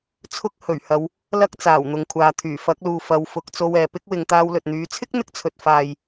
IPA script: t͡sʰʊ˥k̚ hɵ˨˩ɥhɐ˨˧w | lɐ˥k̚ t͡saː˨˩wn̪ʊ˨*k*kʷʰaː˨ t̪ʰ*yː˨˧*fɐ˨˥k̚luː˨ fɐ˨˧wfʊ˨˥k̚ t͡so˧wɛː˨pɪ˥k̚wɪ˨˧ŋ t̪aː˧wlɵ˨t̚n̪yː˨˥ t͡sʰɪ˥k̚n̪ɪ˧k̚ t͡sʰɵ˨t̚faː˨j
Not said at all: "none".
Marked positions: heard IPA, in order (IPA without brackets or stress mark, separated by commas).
ŋ, yː˨˩